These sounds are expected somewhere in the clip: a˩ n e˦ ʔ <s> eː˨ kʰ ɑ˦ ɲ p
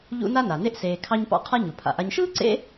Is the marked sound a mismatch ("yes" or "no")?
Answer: no